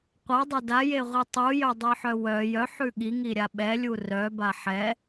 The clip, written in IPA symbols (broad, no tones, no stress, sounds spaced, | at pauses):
qʷ a dˤ a d a j e ʁʷ i tˤ u j œ dˤ œ ħ œ w œ j œ ħ ʉ ɠ i ŋ i ɾʲ a ɓ ɛ lʲ u r œ b a ħ ɛ